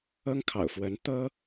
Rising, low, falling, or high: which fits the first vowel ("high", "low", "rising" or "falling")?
high